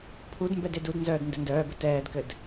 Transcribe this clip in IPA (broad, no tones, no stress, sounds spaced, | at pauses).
pʰ u d m b ɛ d e d u d n z œː d n d ɘ n d œː b ɘ t ɛː d k ɘ d